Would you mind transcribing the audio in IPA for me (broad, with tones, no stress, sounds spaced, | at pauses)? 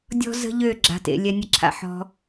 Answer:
dʲ ɔ̤˦ z ə̤˦ ʎ ø˦˨ ɡ͡ǁ a̤˨ t ḛ˨ lʲ ɛ˧ nʲ ə˧ ǁʰ a̰˧ ħ ɔ̤˧